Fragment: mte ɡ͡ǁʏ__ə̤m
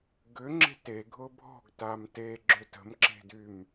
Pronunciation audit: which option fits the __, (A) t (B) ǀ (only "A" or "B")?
A